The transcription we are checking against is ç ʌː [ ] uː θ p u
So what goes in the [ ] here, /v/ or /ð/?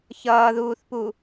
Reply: ð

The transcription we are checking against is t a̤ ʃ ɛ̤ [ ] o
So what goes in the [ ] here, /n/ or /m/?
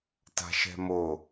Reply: m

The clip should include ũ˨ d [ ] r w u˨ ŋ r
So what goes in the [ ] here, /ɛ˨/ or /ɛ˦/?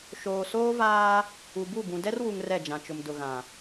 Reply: ɛ˦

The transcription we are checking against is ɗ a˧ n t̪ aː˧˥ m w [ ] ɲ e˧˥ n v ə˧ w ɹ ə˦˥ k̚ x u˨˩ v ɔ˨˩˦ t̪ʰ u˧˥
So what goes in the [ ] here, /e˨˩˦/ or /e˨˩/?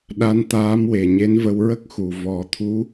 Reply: e˨˩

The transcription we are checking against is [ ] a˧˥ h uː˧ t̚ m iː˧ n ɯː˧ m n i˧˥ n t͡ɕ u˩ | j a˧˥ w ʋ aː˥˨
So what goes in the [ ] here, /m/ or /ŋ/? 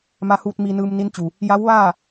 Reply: m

